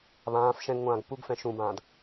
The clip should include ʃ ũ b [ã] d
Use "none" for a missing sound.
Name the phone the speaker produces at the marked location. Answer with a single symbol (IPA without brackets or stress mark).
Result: ãː